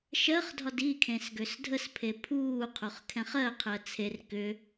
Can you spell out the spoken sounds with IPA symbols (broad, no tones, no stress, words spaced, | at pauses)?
ʃɜχdʱɒd ikʰẽs ɡøsdʱəspʰe pʰuːqʰoχ kʰɛ̃χɜqʰɜ t͡sʰer kʏ